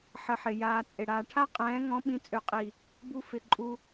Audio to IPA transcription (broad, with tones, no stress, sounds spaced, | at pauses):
ħ ə˧ ħ ɪ˨ j aː˧ t͡sʼ ɪ˨ ɽ aː˨ ʈʰ a˦ qʼ ɛ̃ː˨˦ ŋ ɔ̃˨˦ ɓ ĩ˨˦ t͡sʼ ø˨ qʼ i˨ | b u˧ f ɪ˨ ǃʼ u˧